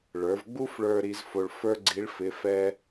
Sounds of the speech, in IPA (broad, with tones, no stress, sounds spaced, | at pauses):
ɭ ə˞˩˧ v ɡ͡b u˥ f ɭ ə˞˧ ɾ i˧˥ z f o˧ ɭ f ə˞˥ ɡ͡ǀ i˧˥ ɭ f ɪ˧˥ f ɛ˥